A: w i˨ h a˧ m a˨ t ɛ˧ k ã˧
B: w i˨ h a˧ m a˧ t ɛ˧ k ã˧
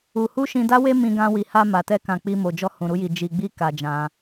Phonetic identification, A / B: A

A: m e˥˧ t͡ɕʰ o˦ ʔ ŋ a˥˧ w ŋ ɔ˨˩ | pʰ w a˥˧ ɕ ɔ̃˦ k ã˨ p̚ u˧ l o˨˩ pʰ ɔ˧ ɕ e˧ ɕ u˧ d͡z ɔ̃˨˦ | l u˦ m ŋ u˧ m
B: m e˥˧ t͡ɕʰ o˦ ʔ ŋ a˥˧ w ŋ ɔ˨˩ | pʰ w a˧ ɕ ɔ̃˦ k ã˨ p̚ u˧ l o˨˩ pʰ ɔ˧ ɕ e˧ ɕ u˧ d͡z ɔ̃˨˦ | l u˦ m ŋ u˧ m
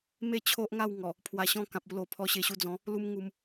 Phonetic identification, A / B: B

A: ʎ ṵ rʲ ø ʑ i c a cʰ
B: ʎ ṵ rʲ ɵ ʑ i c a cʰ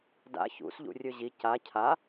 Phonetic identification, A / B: B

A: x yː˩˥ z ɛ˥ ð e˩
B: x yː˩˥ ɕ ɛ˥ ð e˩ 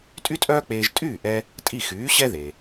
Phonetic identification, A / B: B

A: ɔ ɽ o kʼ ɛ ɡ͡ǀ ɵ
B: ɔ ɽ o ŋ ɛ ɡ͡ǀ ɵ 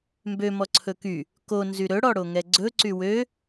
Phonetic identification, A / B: B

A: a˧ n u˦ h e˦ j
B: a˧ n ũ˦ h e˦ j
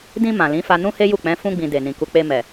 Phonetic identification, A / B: B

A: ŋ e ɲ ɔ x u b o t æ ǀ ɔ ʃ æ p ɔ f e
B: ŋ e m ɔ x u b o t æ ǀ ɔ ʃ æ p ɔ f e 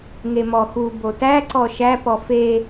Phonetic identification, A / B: B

